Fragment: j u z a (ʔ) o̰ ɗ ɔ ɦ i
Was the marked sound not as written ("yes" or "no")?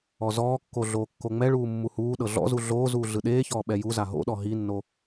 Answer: yes